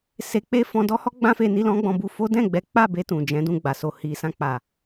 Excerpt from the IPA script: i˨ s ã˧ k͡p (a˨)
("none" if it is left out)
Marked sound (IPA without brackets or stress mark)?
a˨